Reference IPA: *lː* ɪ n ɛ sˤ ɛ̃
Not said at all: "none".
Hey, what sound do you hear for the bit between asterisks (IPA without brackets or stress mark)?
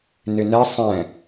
n